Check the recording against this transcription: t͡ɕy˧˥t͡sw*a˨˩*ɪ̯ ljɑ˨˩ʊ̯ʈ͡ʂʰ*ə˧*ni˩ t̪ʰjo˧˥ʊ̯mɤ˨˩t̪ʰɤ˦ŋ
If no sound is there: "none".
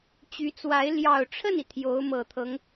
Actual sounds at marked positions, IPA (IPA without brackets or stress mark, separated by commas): a˧˥, ə˥˩